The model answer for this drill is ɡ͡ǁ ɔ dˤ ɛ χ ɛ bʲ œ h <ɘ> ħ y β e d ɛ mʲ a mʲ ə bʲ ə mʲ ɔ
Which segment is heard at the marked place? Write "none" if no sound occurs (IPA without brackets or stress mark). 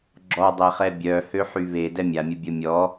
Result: ø